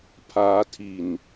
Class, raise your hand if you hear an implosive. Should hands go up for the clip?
no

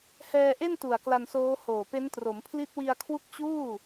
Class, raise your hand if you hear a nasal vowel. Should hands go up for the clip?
no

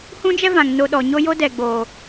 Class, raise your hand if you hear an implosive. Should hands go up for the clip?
yes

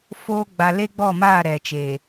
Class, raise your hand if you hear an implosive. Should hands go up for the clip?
no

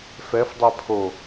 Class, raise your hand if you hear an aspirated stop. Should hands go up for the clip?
yes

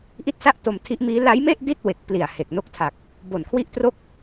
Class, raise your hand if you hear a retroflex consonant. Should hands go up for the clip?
no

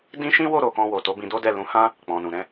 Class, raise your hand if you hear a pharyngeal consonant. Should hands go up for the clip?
no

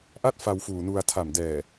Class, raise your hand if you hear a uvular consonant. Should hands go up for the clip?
no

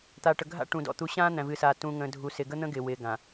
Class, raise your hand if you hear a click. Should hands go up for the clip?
no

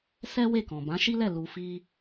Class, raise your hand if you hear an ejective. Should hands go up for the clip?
no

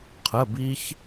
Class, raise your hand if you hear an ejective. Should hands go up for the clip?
no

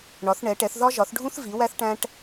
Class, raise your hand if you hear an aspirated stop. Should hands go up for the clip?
no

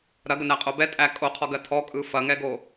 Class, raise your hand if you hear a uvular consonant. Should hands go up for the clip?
yes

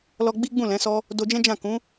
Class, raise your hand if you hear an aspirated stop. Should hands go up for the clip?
no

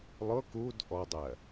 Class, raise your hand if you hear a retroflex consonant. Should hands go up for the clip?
no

